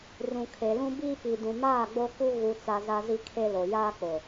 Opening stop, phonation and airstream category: aspirated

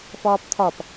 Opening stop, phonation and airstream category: plain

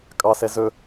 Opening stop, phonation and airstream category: ejective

